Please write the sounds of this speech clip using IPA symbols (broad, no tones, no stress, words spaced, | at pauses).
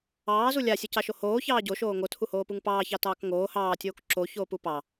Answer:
ɑːzu lʲasʲucɑʃo hoːçɑː ɟoʃoː ŋotʰuhoːpuŋ pɑːçɑtɑːk ŋoː hɑːtʲoːk ǁoçoːpu pɑ